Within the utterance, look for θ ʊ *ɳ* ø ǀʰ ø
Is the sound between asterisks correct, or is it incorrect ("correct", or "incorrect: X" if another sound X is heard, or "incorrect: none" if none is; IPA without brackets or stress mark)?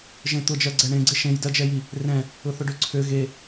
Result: incorrect: ɖ